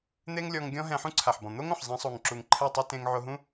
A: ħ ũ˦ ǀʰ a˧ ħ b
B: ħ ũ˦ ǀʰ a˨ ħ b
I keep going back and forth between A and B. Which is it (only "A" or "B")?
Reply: B